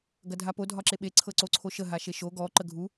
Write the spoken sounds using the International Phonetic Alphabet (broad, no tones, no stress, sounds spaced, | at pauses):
ɡ ɐ dʱ a p o dʱ ɒ ǁ e ɓ e ǀʰ ɤ ǀ o ǀʰ o ʃ ə ɦ a ʃ e ʃ o ɡ ɔ ǃ ə ɡʱ u